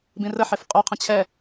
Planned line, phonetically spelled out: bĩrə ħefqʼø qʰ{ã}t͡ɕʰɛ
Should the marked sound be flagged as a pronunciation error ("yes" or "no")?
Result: yes